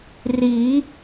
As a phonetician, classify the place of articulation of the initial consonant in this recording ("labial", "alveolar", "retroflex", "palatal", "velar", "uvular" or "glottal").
alveolar